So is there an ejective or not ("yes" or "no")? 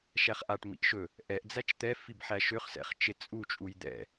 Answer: yes